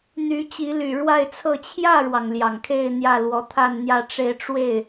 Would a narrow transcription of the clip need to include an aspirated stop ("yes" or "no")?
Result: yes